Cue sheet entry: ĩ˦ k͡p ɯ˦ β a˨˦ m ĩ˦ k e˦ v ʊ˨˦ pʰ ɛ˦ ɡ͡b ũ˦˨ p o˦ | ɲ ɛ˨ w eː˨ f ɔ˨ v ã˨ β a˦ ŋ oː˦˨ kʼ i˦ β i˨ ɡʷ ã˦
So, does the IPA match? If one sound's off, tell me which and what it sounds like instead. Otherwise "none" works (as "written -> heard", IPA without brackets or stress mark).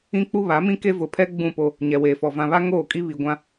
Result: ɯ˦ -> u˦